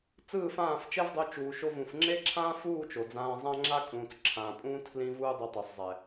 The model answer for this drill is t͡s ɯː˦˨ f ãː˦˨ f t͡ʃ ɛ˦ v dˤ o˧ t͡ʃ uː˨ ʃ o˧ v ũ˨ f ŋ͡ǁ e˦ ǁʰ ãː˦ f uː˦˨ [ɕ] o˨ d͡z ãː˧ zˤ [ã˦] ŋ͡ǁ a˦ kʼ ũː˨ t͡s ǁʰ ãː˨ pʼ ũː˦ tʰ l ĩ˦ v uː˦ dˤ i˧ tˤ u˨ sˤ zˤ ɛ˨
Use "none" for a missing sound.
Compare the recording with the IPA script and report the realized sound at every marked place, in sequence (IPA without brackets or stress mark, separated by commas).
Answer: t͡ʃ, ã˦